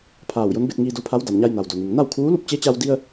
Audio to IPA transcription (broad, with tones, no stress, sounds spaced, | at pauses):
pʰ aː˧˩ w j o˧˥ n b e˧ t̚ ŋ iː˧ d o˧˥ pʰ a˧˥ w d a˩ m ɲ a˧ j n a˩ w d o˩ n i˩ ŋ n a˥˨ w kʰ uː˧˥ l u˥˨ p̚ t͡ɕ e˧˥ t͡ɕ a˧ w d i˧ ə̯